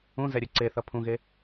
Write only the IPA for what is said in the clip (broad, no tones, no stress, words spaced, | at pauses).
ũzɛɾʲɯ ǀeθʌ pʰũɣe